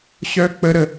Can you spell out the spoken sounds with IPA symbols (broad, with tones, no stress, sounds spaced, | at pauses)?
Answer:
ɕ œ˥ k͡p ə˥ ɾ ə˥